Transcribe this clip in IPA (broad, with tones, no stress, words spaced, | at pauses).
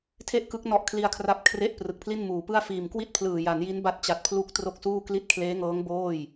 tʰe˥˩ʔkɯ˦˥k̚ nɔ˦˥ʔkʰli˧a̯kʰra˦˥p̚ kʰre˥˩ʔ prɯ˨˩k̚pʰli˥˩nmuː˩˦pɯ˥˩a̯ fiː˨˩mkwi˥˩t̚pʰlɯː˨˩ ja˩˦nji˦˥n ba˦˥t̚t͡ɕa˨˩t̚pʰlu˦˥k̚ tro˥˩k̚suː˥˩kli˥˩t̚ kʰleː˦˥ŋɤː˦˥ŋ boː˥˩j